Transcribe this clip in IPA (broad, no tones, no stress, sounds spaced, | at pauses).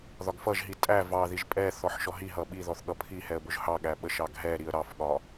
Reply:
ð ɒ ɡ f ʌ ʒ ɦ i tʼ æ v ɑ ð i ʒ pʼ ɛ θ ɔ ħ ʃ ɔ ɦ i ɦ ʌ ɓ i ð ɔ θ ɠ ʌ pʰ i h ɛ ə̯ b ʊ ʒ h ɑ ɠ æ ɓ ə ʃ ɑ ɡ ɦ ɛ ɾ i ə̯ ɾ ɑ f ɠ ɒ